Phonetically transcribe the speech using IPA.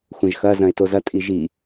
xʷɐ̃ʒxɐ zɐ̃e̯tozɐ tʼiʒi

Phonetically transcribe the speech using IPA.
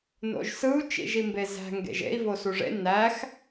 no̰ʒsɯu̯ t͡ʃḭʒimbezæ̤ ŋɡḛʒḛi̯ vosuʐḛ næx

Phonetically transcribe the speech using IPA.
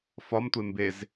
fɒmtʷe mbez

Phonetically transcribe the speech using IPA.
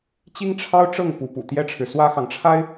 t͡ɕi˥ŋʈ͡ʂʰɑ˥ʊ̯ʈ͡ʂɤ˥˩ŋ pu˧˥pṵ˨˩t̪jɛ˥ʈ͡ʂʰɻ̩˨ swä˥xɑ˨ŋʈ͡ʂʰa˥ɪ̯

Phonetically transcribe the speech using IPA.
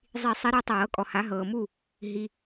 zˤi˨˩˦ sˤi˨˦ɾu˨˦tˤɤː˨˩˦kʼɔ˨ ha˨˦ɦɤː˨mu˦˨ | ɦi˨

